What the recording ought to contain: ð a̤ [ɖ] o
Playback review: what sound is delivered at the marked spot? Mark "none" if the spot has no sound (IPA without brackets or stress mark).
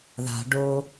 ɖ